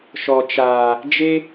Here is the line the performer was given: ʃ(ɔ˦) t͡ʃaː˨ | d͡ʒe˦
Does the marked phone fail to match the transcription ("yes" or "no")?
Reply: yes